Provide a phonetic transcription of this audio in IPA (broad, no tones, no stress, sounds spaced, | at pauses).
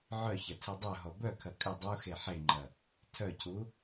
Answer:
ʕ œ ç ɐ tʰ ɛ dˤ œ ɦ ɔ b œ kʰ ɐ kʼ ʏ dˤ u x e ħ e ŋ͡ǃ ɐ | tʰ œ cʰ u